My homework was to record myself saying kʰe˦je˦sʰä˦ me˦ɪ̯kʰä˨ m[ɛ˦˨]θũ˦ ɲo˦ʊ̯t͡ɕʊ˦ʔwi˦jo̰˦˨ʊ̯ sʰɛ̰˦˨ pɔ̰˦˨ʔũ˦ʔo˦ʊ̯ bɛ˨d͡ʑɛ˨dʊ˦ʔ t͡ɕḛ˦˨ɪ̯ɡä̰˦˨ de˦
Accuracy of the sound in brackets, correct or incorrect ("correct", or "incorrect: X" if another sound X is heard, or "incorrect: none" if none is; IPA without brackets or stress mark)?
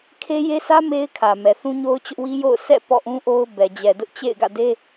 incorrect: ɛ˨